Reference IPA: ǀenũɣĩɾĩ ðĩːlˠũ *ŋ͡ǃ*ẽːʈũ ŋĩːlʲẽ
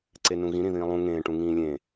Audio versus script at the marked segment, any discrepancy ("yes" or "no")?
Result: yes